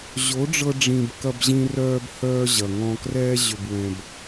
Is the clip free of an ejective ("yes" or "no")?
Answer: yes